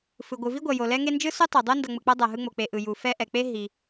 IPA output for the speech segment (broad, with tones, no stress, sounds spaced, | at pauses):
f ɯ˩ ɡʷ ɯ˩ v i˥ ɡʷ ʌ˩ j o˩ l ɛ˦ ŋ e˦ n d͡ʒ ɯ˥ s u˥ tˤ o˩ dˤ o˥ n d ʌ˨ ŋ͡m ɯ˩ k͡p a˥ dˤ a˩ ɦ ɯ˦ ŋ͡m o˩ k͡p e˨ ʔ ɯ˩ j u˩ f ɛ˦ ʔ ɛ˩ k͡p e˥ ɦ i˩